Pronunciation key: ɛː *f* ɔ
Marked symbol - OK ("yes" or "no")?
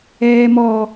no